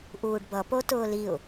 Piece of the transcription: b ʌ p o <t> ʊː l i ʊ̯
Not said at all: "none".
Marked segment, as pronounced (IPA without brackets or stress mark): t